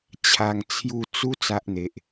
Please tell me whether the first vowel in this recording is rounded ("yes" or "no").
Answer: no